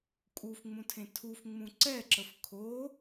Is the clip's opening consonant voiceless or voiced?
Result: voiceless